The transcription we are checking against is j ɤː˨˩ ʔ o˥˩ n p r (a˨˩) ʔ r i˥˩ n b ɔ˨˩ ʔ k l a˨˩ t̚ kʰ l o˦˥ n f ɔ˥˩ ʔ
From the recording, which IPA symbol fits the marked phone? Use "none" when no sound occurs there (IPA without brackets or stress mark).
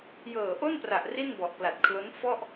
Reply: a˨˩